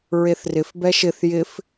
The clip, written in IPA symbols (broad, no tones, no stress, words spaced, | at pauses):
ɹeθrɪf bɛʃɪθ jɪf